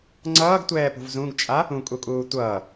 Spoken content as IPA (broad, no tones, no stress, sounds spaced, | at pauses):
ŋ͡ǀ ʌː ɡ tʷ ɛː p ṳ v z ũ ɡ t͡ʃʼ a | ũ kʼ u kʼ uː tʷ ʌː